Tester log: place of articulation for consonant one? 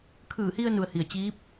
velar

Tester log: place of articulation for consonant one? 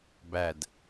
labial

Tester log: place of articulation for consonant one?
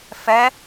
labial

